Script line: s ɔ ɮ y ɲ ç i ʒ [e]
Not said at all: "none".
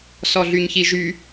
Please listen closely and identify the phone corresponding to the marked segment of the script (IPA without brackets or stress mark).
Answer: y